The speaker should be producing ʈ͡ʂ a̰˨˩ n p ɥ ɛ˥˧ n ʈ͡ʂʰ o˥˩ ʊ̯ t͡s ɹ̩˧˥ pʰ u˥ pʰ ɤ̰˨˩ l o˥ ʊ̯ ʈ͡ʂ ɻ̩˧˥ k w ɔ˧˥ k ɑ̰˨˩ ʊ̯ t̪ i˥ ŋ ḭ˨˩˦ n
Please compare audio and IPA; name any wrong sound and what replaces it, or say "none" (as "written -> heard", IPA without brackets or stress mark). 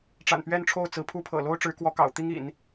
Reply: none